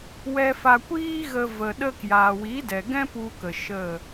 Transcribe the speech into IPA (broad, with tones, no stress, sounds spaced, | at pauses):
w ɛ˧ f a˧ kʷ iː˦ ɣ ə˧ v ə˨ ɗ ə˧ k j aː˨ w i˨˦ d ɛ˨ ɡ ɛ̃˦ p u˧ k ə˨ ʃ ə˦˨